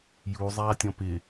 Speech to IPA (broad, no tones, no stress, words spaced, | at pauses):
ju zˤaːtʲɔ̃pɪ